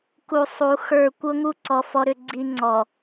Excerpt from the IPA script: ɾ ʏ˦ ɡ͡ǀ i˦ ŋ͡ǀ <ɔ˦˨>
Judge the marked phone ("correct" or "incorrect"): incorrect